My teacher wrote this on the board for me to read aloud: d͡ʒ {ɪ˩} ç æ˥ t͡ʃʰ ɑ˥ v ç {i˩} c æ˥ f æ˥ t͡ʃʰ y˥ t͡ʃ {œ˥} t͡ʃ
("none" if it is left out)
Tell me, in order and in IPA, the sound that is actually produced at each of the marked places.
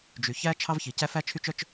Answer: y˩, i˩, œ˥

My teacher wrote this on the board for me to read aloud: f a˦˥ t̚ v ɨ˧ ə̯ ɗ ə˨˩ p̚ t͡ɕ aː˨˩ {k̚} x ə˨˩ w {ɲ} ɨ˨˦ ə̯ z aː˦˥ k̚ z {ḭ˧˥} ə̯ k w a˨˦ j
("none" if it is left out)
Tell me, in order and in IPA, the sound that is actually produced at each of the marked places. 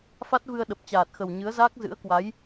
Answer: t̚, ɲ, ɨ̰˧˥

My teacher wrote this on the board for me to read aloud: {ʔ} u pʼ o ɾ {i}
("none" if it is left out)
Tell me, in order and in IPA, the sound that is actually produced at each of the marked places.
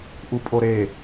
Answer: ʔ, e

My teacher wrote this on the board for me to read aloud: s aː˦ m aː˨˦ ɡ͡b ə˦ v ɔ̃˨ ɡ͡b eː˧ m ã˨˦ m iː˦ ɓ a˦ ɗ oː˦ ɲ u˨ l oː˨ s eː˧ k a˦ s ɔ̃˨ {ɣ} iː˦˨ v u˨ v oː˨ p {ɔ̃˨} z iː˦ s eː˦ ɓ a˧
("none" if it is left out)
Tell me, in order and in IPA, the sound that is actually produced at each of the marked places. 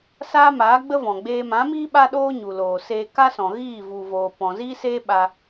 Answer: ɣ, ɔ̃˨

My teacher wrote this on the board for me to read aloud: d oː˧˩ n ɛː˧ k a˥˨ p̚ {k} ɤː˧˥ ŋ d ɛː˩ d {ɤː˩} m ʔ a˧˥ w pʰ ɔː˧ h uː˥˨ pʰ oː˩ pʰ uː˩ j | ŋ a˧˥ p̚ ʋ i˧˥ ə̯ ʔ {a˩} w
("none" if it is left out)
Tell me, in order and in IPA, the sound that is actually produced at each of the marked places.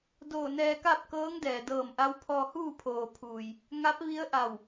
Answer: k, ɤː˧˩, a˧˩

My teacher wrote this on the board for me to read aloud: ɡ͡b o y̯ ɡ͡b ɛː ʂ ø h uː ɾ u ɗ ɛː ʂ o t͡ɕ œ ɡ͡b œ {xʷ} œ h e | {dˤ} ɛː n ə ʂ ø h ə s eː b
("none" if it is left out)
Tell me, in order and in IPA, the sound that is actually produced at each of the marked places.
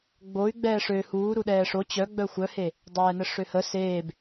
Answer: xʷ, dˤ

